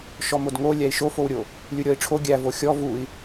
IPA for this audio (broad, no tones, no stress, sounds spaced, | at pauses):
ʃ ɔ m o d ŋ o lʲ æ i̯ ʃ o f o w ɾʲ o | lʲ u ɾʲ ɔ i̯ ʈ͡ʂʰ o ɡʲ æ v o xʲ ɔ v u i̯